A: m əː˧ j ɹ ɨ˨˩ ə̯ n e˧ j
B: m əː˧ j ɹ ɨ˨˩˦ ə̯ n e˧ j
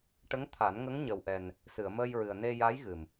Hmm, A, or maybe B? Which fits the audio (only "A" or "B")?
A